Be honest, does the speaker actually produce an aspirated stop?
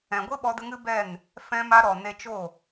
no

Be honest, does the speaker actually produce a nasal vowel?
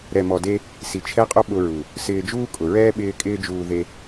no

